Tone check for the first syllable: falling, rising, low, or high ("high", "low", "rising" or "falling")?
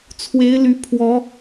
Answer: rising